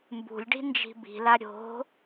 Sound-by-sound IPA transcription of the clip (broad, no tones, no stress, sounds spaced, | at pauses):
m b ṳ lʲ ɖ i̤ n d͡ʒ i̤ b i̤ l a ɾʲ o̤